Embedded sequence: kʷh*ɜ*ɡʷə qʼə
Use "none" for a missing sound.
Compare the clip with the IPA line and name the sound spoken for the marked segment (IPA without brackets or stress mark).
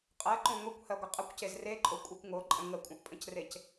ɜ